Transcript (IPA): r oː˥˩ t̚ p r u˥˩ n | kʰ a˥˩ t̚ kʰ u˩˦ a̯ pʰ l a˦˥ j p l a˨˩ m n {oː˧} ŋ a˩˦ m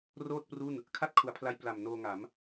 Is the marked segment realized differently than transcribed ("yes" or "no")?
no